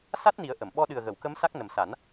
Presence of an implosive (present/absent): present